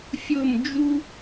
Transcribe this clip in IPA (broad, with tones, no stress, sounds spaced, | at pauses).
fʲ ʊ˧˩ m d͡ʒ u˧